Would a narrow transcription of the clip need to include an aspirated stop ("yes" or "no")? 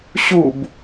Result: no